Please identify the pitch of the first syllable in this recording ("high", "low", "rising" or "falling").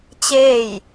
falling